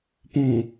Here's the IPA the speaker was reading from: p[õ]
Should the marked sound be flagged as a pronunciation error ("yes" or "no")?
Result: no